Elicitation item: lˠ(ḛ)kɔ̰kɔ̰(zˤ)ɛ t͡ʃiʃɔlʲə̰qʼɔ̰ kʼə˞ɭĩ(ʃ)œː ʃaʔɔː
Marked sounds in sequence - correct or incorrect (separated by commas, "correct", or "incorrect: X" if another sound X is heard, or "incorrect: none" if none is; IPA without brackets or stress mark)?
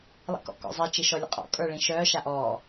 incorrect: ḭ, correct, correct